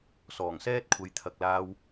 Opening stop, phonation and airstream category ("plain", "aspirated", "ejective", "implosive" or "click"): plain